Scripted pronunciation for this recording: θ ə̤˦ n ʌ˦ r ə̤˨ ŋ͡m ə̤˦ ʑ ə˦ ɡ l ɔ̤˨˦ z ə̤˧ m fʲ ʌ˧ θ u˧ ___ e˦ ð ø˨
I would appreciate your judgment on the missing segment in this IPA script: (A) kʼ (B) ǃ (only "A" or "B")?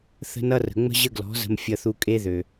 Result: A